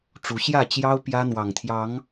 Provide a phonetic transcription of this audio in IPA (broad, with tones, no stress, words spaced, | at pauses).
ʈ͡ʂu˨˦ɕjä˥˨ t͡ɕjɑ˦ʊ̯ pjä˦n̪wɑ˨˩ŋt̪ʰjɑ˨˦ŋ